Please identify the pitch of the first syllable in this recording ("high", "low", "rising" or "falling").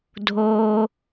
low